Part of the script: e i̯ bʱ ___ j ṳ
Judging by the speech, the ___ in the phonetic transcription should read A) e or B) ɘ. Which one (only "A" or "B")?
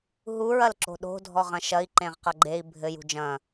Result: B